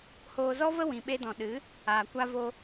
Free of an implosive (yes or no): no